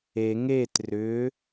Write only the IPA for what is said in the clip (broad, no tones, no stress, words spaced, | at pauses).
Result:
e ŋet rʏ